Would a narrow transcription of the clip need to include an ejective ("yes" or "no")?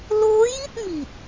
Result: no